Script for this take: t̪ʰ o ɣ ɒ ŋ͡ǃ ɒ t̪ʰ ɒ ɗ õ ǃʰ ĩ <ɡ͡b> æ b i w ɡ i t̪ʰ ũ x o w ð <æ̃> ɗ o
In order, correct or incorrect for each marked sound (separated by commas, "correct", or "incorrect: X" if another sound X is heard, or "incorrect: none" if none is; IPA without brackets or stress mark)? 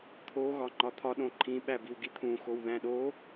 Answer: incorrect: ɓ, correct